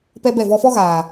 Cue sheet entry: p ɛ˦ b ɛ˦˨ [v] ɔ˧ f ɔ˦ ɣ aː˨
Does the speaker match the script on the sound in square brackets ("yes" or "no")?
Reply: yes